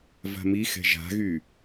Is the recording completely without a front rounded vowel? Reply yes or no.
no